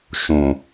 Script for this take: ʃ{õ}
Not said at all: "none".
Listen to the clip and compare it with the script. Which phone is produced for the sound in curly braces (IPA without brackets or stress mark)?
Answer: õ